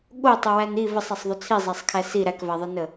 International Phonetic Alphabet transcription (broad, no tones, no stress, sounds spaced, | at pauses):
ɠ o tˤ o w æ n i v ə sˤ æ sˤ ðˤ o t͡sʰ i zˤ æ sˤ kʰ æ s i ɾ æ k v æ ðˤ ə n ə